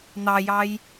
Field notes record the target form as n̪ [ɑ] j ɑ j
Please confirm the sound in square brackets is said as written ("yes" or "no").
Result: yes